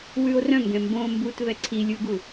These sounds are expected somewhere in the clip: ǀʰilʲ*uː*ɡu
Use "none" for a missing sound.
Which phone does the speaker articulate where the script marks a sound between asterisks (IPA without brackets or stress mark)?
u